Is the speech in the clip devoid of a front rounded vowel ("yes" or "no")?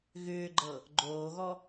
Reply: no